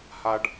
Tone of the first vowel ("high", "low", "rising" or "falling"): high